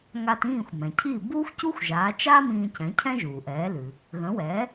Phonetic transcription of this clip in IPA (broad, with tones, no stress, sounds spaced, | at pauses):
ŋ a˧ t ĩː˥˩ xʷ m ɛ̃˩ cʰ i˥˩ b uː˥ xʷ c u˥ xʷ ʒ aː˩˥ t͡ʃ aː˥ m ĩː˧ c ɛ̃˩˥ cʰ ɛ̃˥ ʒ uː˩ ʔ ɛː˩˥ l ʉ˩ | ɣ ə̃˩˥ w ɛː˩˥